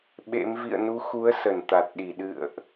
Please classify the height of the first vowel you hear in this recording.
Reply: mid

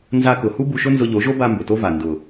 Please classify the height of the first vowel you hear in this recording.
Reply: low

